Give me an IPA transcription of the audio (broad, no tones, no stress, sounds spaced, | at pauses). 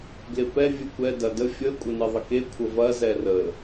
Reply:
ɡ l ɪ p ɛ vʲ ɨ kʷ ɛ d ɐ d ə fʲ ə kʷʼ ə n ɨ ðˤ ə k e kʷʰ ə v ɐ z ɛ r ə